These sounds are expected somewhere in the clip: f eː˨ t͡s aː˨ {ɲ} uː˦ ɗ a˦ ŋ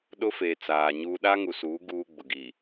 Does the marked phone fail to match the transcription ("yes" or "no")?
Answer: no